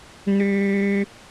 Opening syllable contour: high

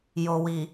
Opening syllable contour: low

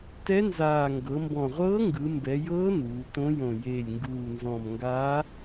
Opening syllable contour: rising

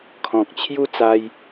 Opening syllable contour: low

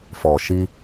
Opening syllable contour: low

